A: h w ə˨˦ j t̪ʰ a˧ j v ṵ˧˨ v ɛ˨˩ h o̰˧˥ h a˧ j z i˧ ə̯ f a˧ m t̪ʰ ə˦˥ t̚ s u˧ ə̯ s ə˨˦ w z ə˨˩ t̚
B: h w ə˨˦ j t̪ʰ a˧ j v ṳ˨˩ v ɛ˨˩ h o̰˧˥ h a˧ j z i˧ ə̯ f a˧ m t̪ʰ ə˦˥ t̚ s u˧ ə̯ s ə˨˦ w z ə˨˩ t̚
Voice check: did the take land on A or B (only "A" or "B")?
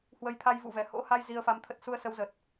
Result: A